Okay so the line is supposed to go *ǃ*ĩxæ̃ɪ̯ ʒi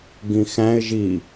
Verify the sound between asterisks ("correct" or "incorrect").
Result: incorrect